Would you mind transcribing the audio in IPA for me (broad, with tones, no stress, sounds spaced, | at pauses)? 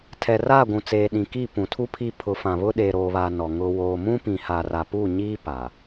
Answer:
tʰ ɛ˨ r aː˦˨ ɡʷ ũ˨ t͡s eː˨ ɗ ĩ˨ k i˦˨ p ũ˨ tʰ u˦ pʰ i˦ pʰ ʊ˨˦ f ã˨ β ʊ˦ ɗ eː˨ ɾ oː˨ β aː˨ n ɔ˨ ŋ ʊ˨ w oː˨ m ũ˦ p ĩ˨ h a˨ r a˨ p u˦˨ ɲ iː˦ p a˨